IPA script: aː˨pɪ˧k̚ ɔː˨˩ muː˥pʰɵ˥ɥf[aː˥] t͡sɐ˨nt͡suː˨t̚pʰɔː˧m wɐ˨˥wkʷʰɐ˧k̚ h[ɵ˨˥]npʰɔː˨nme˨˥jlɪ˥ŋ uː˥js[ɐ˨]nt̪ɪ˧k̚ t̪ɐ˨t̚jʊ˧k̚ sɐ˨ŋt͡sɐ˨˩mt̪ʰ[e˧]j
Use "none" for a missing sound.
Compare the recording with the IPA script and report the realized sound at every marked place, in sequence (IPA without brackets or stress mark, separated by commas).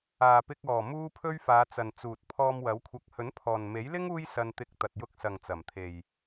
aː˨˧, ɵ˨˥, ɐ˧, e˨